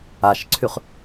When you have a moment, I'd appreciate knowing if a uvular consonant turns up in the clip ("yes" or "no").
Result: yes